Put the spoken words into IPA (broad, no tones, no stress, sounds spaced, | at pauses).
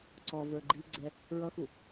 ǀ ɔ v ə˞ ɡ͡ǃ i ɡ͡ǀ ɛ | ɹ ʌ x u